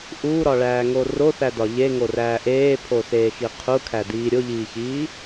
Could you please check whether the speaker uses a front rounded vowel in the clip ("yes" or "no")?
no